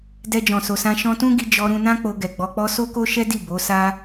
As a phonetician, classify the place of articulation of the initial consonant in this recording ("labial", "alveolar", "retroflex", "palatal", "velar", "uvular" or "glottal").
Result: alveolar